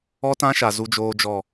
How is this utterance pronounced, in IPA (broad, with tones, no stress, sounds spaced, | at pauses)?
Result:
ɔ˦ t ã˦ ʃ a˨ z u˦ d͡ʒ oː˦ d͡ʒ ɔ˦˨